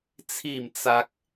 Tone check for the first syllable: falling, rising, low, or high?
falling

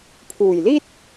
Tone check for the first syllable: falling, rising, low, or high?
low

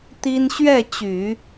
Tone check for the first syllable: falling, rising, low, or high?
high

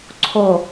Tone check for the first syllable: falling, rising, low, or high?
low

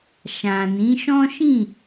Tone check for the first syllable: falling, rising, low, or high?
low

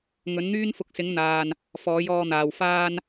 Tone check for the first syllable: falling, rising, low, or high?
rising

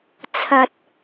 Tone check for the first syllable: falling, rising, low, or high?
low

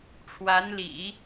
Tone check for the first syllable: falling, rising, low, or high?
rising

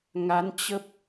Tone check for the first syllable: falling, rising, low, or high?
rising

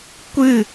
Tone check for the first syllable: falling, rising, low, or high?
falling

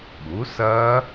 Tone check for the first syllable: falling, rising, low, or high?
rising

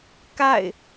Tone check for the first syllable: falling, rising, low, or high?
falling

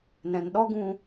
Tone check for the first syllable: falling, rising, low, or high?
low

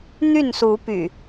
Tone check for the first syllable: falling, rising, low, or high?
falling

